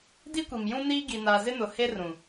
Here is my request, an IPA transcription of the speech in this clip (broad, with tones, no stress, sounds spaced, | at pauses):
d i˦ kʷ i˨ m j ũ˦ n iː˦ ɡ i˨ n a˨ z ɪ˦ n ʊ˨ h e˦ r ũ˨